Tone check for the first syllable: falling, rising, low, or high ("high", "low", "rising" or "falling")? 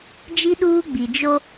high